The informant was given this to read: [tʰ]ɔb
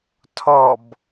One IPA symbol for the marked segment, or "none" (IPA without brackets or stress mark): tʰ